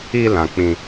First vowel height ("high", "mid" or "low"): high